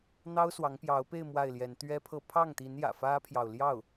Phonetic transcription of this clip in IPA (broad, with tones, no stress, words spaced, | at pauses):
n̪ɑ˥ʊ̯swɑ˧˥ŋpjɑ˧˥ʊ̯pe˥˧ɪ̯ mwa˥˩ɪ̯ljɛ˧˥n t̪ɥɛ˥pʰɤ˥˧ pʰɑ˥˩ŋt̪i˧˥njä̰˨˩ fä˥pʰjɑ˨ʊ̯ljɑ˥˩ʊ̯